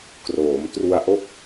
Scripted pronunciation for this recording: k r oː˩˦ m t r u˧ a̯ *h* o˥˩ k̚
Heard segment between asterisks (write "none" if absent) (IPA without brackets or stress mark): ʔ